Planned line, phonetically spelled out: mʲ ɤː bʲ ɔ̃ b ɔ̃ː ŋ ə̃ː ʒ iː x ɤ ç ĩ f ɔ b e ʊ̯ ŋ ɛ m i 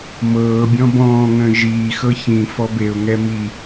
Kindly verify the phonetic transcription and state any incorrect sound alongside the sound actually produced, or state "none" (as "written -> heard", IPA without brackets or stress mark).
mʲ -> m